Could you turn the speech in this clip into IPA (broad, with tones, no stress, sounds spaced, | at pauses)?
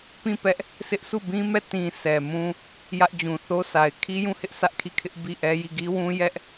p ĩ˦˨ p ɛ˦ ʔ | s ɪ˦ ʔ s u˦˨ b ĩ˦ m ɛ˦˨ t ĩ˨ sʰ ɛ˨ m ũ˦ | j ä˦ ʔ d͡ʑ ũ˨ θ o˦ sʰ a˨ ɪ̯ kʰ i˦ j ũ˦˨ h ɪ˦ ʔ s ä˦ ʔ kʰ i˦˨ kʰ ɪ˦ ʔ b i˦˨ ʔ ɛ˦ j i˦˨ ɡ i˦ w ũ˦ j ɛ˦ ʔ